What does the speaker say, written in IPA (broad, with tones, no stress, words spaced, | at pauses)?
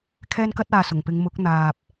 kʰɛː˧nkɐ˧t̚aː˨ sʊ˨˩ŋpɪ˨˧ŋ mʊ˨˥k̚ n̪aː˨p̚